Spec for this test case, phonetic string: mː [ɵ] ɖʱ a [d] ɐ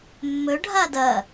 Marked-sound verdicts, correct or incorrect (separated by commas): correct, correct